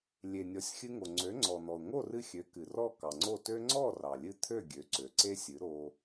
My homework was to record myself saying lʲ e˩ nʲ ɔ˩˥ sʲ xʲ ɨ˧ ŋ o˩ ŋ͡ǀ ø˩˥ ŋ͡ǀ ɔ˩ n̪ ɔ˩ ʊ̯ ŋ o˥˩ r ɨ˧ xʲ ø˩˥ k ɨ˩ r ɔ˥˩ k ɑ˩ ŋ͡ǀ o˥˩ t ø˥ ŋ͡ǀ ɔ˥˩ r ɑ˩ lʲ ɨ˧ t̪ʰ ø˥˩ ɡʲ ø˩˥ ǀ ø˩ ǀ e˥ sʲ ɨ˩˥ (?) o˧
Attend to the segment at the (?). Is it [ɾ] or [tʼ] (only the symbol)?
ɾ